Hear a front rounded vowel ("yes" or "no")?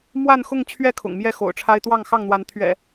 no